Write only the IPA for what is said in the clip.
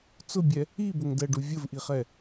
t͡s ʊ bʲ ɛ | i b ʊ ŋ d ɛ ɖ u vʲ ə v ʔ i χ ɛ

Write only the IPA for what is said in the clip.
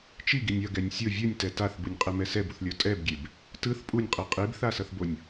t͡ʃ i ɡ i nʲ ʌ ɡ ɛ nʲ sʲ o vʲ u nʲ t ɛ t a θ b ɯ nʲ qʼ e m ɛ s ɛ b u θ lʲ o tʼ ɛ b ɡʲ e b | t ɯ θ pʼ u nʲ qʼ i qʼ i b θ a s ʌ θ b o nʲ

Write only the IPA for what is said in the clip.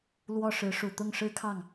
l w ɔ˥˩ ʂ ɻ̩˧˥ ʂ u˨˩ t̪ ʊ˥˩ ŋ ʂ ɻ̩˥ kʰ ɑ˥˩ ŋ

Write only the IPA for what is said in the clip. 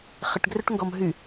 χ ɪ ʈ ɡ r ø ʈ ŋ ɡ ɔ m ɦ y

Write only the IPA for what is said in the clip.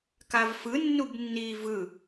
k a v f ɯ nː u b nː iː v ɯ

